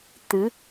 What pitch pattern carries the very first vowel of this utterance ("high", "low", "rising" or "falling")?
rising